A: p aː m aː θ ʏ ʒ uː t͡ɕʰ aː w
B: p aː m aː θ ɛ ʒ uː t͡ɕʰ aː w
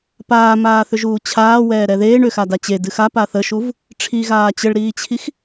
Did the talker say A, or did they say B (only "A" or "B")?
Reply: A